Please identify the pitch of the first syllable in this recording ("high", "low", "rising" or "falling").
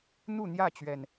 falling